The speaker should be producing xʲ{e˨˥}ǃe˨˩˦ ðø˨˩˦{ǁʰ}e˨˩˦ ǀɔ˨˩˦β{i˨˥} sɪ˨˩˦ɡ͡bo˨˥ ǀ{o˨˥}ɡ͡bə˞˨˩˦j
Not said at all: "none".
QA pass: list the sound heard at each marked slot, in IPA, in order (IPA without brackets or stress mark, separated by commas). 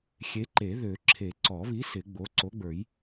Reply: e˨˥, ǁʰ, i˨˥, o˨˥